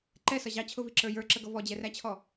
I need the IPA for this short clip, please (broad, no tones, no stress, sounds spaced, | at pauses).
ǃ ɛ s ʌ ʑ ɑ t͡ɕʰ ʊ v i ǁ ə˞ j ə˞ ǁ ə ɡ ʌ v ɔ d͡ʑ ɛ r æ t͡ɕʰ ɔ